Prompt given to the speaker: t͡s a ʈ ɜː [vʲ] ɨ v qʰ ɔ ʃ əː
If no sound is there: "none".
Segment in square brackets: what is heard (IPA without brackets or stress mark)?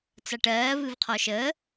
v